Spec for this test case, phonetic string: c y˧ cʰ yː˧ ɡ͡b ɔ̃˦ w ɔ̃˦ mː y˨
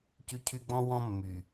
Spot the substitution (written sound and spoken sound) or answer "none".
yː˧ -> y˧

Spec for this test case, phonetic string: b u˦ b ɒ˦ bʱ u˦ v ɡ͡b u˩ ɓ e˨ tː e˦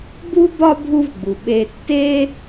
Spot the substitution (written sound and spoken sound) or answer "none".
none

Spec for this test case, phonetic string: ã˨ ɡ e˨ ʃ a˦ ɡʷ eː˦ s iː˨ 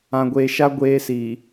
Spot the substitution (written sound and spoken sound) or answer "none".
ɡ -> ɡʷ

